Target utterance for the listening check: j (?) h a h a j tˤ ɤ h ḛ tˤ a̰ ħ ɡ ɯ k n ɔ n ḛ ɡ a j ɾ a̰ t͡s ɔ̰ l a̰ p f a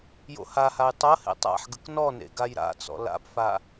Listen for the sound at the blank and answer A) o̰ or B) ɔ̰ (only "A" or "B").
A